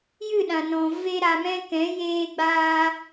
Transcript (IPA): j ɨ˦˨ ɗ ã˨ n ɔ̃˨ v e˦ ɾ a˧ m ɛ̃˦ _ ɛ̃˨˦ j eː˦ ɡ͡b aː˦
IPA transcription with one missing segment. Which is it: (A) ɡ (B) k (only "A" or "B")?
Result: B